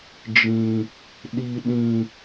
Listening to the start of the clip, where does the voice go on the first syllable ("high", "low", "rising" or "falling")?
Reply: low